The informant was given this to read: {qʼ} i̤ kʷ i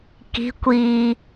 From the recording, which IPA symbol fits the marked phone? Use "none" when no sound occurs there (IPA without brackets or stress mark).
k